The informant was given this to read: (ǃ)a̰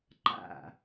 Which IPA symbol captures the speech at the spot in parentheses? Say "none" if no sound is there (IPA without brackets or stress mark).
ǃ